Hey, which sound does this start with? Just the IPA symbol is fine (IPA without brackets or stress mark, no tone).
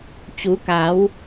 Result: t͡ɕ